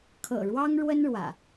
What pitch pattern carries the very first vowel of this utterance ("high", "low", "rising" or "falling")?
low